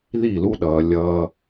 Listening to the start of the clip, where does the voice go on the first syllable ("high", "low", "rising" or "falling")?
falling